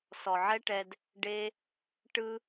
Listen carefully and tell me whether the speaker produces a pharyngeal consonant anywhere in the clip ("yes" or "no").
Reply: yes